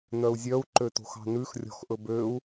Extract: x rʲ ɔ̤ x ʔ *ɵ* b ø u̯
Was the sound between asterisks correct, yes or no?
yes